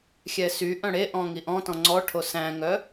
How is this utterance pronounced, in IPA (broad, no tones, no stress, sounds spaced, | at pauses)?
xʲ ɛ s y ʔ œ̃ ɽ e ʔ ɔ̃ ŋ i ʔ ɔ̃ t ɔ̃ ŋ͡ǀ ɔ ʈʰ o s æ̃ ŋ œ